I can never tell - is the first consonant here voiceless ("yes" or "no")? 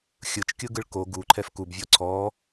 yes